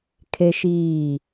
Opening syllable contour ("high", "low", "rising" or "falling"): high